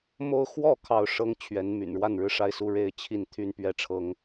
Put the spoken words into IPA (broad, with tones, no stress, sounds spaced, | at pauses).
m o˦ ʊ̯ x w ɔ˥˨ kʰ ɑ˥˨ ʊ̯ ʂ ɤ˦ ŋ t͡ɕʰ ɥ ɛ˨˦ n m y̰˨˩ n ɻ w a˥˨ n ɻ ɻ̩˥˨ ʂ a˥˨ ɪ̯ s u˥˨ ɻ e˥˨ ɪ̯ t͡ɕʰ i˥˨ n t̪ʰ y˥˨ n p ɥ ɛ˥˨ ʈ͡ʂʰ ɤ˦ ŋ